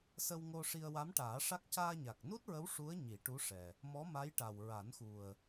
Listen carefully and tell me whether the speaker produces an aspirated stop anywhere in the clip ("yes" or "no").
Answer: no